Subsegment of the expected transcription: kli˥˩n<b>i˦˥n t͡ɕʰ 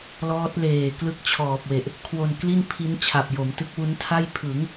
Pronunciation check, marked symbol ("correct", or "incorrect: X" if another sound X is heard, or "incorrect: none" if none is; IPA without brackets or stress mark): incorrect: pʰ